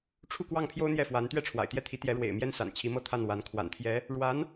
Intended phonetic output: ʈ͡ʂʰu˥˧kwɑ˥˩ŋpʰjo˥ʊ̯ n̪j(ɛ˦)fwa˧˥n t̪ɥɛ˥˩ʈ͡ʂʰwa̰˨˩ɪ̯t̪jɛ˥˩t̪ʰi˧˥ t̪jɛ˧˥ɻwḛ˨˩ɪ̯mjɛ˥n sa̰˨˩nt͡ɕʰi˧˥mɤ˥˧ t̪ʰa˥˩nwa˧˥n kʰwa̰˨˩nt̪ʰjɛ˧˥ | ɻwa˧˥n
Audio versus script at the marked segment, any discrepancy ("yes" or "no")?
yes